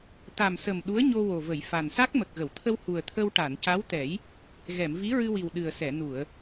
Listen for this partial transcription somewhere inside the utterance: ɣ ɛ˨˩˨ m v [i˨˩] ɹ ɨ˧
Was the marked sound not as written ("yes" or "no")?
yes